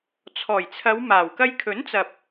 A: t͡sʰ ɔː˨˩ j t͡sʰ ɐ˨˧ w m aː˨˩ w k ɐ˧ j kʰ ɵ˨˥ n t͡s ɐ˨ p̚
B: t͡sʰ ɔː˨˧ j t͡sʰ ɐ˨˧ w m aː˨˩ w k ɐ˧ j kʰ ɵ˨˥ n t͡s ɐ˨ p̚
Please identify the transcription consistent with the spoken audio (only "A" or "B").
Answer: A